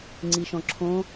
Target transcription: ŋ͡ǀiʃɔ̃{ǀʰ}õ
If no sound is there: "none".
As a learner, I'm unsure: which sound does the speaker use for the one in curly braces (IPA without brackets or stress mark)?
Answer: ǁʰ